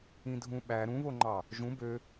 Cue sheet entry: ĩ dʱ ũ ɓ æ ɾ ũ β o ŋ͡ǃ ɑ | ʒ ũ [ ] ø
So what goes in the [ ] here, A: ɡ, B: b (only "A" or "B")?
B